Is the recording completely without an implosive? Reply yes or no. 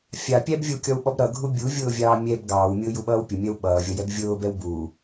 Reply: no